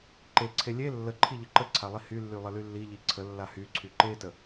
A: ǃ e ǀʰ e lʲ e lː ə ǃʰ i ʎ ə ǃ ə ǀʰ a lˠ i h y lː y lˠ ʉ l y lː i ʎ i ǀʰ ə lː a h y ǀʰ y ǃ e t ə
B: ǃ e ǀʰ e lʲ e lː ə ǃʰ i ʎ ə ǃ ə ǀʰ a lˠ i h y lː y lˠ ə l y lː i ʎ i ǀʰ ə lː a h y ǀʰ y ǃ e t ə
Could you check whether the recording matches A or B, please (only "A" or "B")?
B